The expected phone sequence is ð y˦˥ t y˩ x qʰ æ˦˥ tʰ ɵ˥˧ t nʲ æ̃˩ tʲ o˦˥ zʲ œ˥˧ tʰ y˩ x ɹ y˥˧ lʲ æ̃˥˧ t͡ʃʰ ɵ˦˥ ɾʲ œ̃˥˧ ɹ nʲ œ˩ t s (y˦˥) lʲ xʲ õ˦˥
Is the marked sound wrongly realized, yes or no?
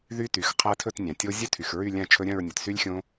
no